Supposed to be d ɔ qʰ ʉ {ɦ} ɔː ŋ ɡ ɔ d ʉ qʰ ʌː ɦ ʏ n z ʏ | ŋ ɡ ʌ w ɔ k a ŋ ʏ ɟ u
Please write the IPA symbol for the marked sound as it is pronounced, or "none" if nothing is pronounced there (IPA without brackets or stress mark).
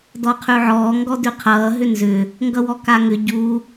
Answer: ʕ